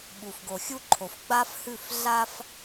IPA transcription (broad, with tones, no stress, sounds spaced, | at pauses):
ɓ u˨ f ɡ o˨ xʲ u˦ ǃʰ o˨ f ɡ͡b a˦ f h ʉ˦˨ f ɮ a˦ f